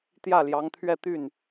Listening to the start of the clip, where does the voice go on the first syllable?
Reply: falling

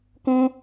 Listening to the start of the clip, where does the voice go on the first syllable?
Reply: high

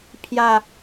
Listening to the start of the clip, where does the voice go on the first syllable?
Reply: low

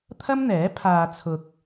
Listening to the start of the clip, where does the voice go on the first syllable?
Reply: high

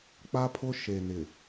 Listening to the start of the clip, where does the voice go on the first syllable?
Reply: high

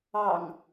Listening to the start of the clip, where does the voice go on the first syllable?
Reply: low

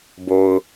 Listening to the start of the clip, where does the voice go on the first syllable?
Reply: low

